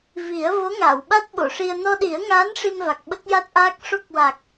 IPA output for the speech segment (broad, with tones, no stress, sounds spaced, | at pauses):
v i˨˩˦ ə̯ v o˧˥ ŋ aː˨˩˨ w ɓ a˦˥ t̚ ɓ o˨˩˨ ʂ i˧ ə̯ n ɔ˧ ɗ i˨˩˦ ə̯ ŋ aː˧˥ n ʂ i˧ m v a˨˩ k̚ ɓ ə˦˥ k̚ j a˦˥ t̚ ʔ aː˦˥ k̚ ʂ o˦˥ k̚ w a˨˩ k̚